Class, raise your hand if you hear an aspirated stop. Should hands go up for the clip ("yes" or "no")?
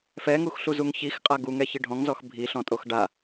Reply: no